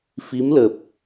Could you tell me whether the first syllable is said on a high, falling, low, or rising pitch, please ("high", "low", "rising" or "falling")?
rising